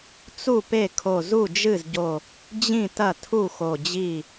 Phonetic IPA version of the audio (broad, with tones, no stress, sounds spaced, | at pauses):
t͡s u˥˩ p e˥˩ kʰ o˧˩ z u˥˩ d͡ʒ ɨ˥˩ z ɟ o˧˩ | d͡ʑ ĩ˥˩ t ɐ˥˩ tʰ u˥˩ x o˧˩ d͡ʑ i˥˩